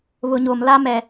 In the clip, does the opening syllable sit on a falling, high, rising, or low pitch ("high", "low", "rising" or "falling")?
low